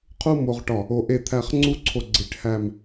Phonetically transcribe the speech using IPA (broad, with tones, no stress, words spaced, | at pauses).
qʰu˥mo˧ʁʈɒ˧˩ | o˧ʔe˥˧t̪ʰæ˥˧χ ŋ͡ǀu˥˧ǀʰo˧ɡ͡ǀi˧˩ʈ hæ˥˧m